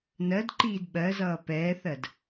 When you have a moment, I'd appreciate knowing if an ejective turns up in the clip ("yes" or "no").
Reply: no